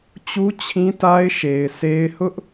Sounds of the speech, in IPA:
t͡ɕu˦t͡ɕʰĩ˦ta˦ɪ̯ ʃe˨ɪ̯se˦ɪ̯ hʊ˦ʔ

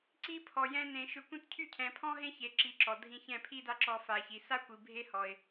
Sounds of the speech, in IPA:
ǀi˦pʰɔ˨ jɛ̃˦nẽ˧ ʃʏ˧kʷĩ˦t cʰy˦˨cʰɛ̃˨pʰɔ̃˦ɦẽ˦ çe˨˦ǁi˨˦ǁɔ˨dʱĩ˧ çɛ̃˦˨pʰi˦da˦ǁɔ˧ fa˨çi˨ sa˦kʷi˨ bʱe˦hɔ˨ɪ̯

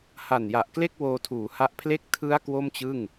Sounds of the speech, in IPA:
ha˨˩nja˨˩ʔkle˥˩k̚ woː˧tʰuː˩˦ha˦˥ʔpʰle˥˩k̚ tʰɯ˦˥a̯ kwo˥˩mt͡ɕɯ˥˩ŋ

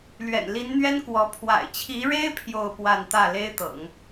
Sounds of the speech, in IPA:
lɥɛ̰˨˩nli˧˥nn̪ɥɛ˥nkwɔ˧˥ pʰwa̰˨˩ɪ̯t͡ɕʰi˧˥ɻe˥ɪ̯ pʰjo˥˧ʊ̯pwa˥˧n t̪ä˥˩le˥ɪ̯t̪ɤ̰˨˩˦ŋ

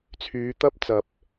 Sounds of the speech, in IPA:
t͡sʰyː˨˧t̪ɐ˥p̚t͡sɐ˨p̚

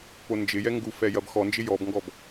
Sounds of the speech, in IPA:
pond͡ʒɪjɛ ŋɡufɛ jɐbxɔnd͡ʒɪ jɔbŋɡɔb

